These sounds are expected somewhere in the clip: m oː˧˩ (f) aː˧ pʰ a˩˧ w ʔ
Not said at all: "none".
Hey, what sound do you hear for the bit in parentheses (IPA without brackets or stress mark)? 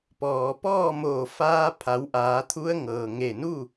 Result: f